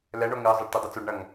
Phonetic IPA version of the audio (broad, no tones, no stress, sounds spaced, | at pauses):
l ɛ ɳ o ŋ ɨ ɐ̯ zˤ ɐ ɖ t ɨ dˤ ɐ t͡s u ɖ ɳ ɐ ŋ